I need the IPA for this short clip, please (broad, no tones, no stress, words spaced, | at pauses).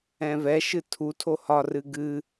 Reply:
ɛ̃vɛʃɨ tʰutʰo hɒrɨ ɡɨ